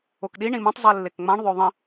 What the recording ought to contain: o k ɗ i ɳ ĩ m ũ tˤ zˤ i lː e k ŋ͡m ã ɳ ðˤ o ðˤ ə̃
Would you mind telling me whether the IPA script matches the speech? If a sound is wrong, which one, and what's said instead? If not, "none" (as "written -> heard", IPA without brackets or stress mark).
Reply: none